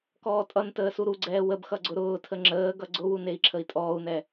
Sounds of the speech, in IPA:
kɔːtʼʌntəː suɾuɡ͡ǀɛː wəbxʌ ɡ͡ǀʊɾʊːtʰə ŋ͡ǁəːɡʌ ɡ͡ǀʊwun ei̯ǁʰəi̯tʼɔːu̯nɛ

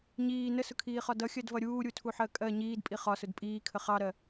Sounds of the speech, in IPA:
ɲiː nəsʊkʰiːχɒ dʌxʲɜdvʌ ɾʲuːɾʲutʰuħɜ kʼɜ ɲiːdpʼi χɒsʊd pʼiːkʰə χɑɾɜ

